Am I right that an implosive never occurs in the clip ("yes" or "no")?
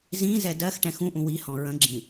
yes